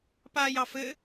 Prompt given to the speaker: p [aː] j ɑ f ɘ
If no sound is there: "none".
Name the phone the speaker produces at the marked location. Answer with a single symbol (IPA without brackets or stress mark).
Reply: aː